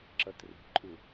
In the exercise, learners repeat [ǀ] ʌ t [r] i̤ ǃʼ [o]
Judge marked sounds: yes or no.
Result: no, yes, no

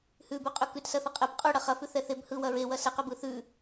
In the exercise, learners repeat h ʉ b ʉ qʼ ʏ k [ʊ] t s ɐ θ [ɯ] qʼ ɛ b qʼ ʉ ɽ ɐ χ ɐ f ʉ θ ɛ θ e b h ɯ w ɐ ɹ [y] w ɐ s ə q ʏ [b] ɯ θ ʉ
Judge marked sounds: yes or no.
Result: no, no, no, yes

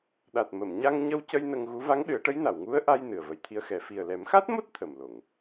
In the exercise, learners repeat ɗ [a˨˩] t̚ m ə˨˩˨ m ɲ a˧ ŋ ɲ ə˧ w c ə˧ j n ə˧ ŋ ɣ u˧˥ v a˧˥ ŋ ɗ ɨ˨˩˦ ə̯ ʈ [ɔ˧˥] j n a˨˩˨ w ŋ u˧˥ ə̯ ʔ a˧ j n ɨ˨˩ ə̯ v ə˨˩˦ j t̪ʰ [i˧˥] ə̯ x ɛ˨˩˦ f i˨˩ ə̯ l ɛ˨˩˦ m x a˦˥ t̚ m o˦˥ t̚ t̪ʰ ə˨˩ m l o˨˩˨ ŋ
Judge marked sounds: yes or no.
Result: yes, no, yes

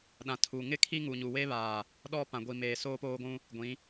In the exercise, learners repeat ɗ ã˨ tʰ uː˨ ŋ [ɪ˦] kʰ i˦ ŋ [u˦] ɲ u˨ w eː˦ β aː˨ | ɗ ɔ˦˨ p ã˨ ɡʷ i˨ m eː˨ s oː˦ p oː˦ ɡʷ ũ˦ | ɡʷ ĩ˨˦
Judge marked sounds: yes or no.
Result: yes, no

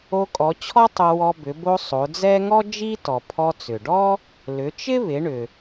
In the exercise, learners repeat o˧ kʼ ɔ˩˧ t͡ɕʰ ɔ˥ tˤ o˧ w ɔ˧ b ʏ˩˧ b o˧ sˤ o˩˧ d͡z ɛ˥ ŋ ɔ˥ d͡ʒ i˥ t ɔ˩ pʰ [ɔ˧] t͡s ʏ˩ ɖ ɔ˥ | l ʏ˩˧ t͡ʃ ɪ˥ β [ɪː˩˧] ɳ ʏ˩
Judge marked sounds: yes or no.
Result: yes, no

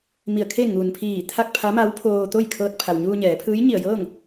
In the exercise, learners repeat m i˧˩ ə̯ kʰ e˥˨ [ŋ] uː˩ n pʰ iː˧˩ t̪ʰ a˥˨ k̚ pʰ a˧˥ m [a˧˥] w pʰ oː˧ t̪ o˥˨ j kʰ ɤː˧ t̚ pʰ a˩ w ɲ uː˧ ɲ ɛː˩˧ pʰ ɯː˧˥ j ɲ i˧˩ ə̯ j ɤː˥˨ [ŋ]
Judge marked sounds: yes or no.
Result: yes, yes, yes

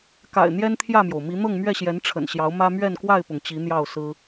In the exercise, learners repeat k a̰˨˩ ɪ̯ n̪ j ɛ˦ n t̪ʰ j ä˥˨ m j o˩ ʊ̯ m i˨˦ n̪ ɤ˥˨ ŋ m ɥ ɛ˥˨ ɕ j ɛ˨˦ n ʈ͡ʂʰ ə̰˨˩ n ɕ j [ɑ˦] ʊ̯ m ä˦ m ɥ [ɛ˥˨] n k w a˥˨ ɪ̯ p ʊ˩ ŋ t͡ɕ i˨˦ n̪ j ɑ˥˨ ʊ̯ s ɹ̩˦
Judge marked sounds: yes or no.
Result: no, yes

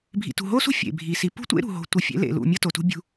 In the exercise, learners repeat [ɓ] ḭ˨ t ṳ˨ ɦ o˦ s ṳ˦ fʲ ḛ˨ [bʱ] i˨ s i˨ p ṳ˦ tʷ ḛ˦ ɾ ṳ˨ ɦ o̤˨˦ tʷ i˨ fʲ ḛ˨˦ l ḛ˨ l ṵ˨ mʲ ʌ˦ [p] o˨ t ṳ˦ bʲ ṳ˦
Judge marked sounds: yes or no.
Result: no, yes, no

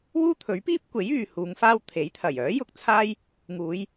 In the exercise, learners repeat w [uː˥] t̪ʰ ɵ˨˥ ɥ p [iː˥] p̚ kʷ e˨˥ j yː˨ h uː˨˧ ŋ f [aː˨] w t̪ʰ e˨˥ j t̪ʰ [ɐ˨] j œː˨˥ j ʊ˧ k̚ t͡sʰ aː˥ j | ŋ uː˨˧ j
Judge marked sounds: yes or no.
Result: yes, yes, no, no

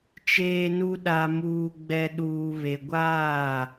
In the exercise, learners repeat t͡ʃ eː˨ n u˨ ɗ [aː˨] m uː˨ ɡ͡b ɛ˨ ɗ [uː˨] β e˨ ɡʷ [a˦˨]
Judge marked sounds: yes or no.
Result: no, yes, no

